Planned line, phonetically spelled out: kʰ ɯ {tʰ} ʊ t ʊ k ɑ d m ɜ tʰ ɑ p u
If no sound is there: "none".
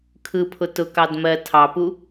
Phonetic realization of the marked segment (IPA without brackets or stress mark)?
pʰ